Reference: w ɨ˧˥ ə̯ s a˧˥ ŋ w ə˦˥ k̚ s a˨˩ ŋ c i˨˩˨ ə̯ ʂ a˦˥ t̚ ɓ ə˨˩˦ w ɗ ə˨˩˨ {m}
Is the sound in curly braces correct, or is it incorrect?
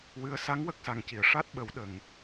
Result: incorrect: ŋ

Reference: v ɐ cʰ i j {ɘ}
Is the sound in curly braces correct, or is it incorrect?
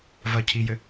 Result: correct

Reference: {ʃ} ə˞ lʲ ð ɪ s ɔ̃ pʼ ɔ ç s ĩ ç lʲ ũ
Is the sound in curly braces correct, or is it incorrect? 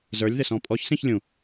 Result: incorrect: z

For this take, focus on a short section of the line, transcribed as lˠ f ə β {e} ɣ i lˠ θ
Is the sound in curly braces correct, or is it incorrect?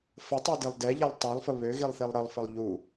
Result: incorrect: ø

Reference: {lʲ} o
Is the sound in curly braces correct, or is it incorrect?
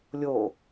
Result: correct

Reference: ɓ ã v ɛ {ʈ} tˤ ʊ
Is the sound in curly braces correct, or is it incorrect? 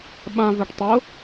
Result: correct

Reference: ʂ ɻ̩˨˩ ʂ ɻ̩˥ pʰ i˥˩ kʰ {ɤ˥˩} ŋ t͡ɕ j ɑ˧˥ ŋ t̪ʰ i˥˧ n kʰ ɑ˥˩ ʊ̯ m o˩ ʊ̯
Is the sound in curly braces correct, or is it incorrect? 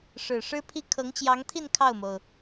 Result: incorrect: ɤ˧˥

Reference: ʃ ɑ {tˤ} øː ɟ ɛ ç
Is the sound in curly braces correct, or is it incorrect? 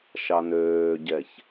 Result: incorrect: n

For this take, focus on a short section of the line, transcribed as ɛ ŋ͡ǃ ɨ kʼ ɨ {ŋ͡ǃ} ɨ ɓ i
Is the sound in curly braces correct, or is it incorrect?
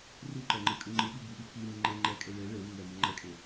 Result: correct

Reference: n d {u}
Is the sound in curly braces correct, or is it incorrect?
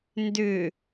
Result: incorrect: ʏ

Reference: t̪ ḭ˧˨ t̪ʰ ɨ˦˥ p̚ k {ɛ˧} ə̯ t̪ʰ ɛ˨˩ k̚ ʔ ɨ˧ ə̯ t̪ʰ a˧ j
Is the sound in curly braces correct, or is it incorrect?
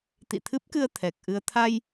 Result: incorrect: ɨ˧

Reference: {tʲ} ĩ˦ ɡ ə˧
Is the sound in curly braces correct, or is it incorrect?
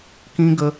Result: incorrect: k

